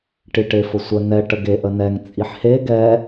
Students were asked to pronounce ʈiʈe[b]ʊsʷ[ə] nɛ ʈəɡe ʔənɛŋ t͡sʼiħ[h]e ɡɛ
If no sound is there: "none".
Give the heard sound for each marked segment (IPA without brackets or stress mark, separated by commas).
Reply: f, ə, h